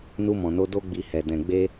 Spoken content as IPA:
nu˧mɔ̃˨no˧ do˧ɡ͡bi˨ hɛ˨ dɛ̃˨ɡ͡be˧

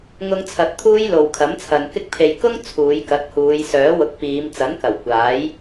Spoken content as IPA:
ŋʊ˧ŋt͡sʰɐ˨t̚ t̪ʰuː˥jlo˨w kʰɐ˨˥mt͡sʰɐ˨nkɪ˥k̚ pʰe˨jkʊ˥ŋ t͡sʰuː˨˧jkɐ˨˥t̚huː˨˧j sœː˨˥wʊ˨˥k̚piː˨˧m t͡sɐ˨˥nkɐ˨˩w kʷaː˨˥j

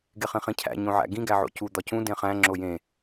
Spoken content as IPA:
ɡeχĩχĩcʰæ̰ ɲõʕæ̰ɡĩ ɡæʕo̰cu d̪ɒcũ dẽχæ̃ ŋ͡ǁojẽ

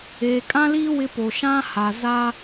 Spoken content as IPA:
eː˨kʼã˦liː˦ wɪ˦po˨ ʃã˦ha˨za˦

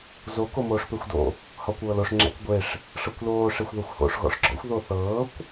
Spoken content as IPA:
zo komoːʂpexʷdo̰ | hɔkʷɤːloʂ ŋ͡ǁɛ̰kɡʷeʂ | ʂɤkʷloː ʂexʷðɤxʷho̰ʂ ɣɔ̰ʂɡ͡ǁɔ̰xʷ ðoθɤːkʷ

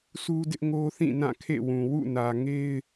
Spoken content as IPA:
sʰu˦dɪ˦ʔŋo˦θĩ˦˨ nã˦˨kʰḛ˦˨wũ˨ wṵ˦˨nä˨ ŋe˦ɪ̯

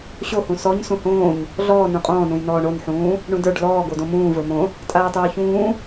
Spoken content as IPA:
ɕohũ sɔɲ sũhõːɲ | ɮɔː nũqʼɔ̃ːnũj nɔːɳonħũː | ɳũdə˞ɖ lɔː ɡodõmũː və˞mõ | tʼaːtˤoːçũː

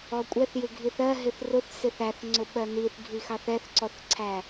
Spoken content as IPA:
ɔkʷʼɛθjɪ ɡʱiθɜ ɦɪθrʊθ sɪθæθŋ͡ǀʊ ɓɜniθɡʱixɑθ ɛθǀɔθǀʰæ

